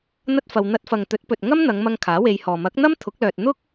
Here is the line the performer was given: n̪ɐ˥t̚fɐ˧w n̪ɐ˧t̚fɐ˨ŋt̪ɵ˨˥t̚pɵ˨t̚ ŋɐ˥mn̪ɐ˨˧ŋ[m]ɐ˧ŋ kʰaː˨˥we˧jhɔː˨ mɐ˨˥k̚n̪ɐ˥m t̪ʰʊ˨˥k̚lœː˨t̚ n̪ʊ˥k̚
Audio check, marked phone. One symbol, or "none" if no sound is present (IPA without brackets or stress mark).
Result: m